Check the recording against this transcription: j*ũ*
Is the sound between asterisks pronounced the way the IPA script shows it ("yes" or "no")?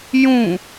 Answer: yes